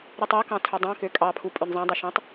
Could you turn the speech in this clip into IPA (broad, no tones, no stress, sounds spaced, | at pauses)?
ɾ ʉ tˤ o k ɑ̃ tʰ ɵ dˤ œ̃ k ø kʼ ɑ pʰ u pʼ ø n zˤ ɑ̃ dˤ e ʃ ẽ tˤ